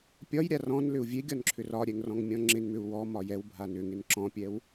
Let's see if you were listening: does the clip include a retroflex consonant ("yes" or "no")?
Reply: no